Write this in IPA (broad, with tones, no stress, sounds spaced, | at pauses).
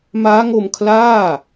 m aː˦˥ ŋ o˧ m kʰ l aː˥˩